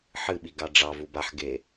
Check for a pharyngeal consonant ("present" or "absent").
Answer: present